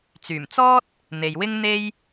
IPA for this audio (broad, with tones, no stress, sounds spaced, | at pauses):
t͡s yː˨˩ m t͡s ɔː˥ t̚ | n̪ e˨ j w ɪ˥ ŋ n̪ e˥ j